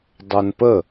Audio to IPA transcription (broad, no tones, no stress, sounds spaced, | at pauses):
dˤ ɜ n p ə